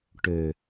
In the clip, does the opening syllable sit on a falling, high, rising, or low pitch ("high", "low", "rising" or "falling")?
low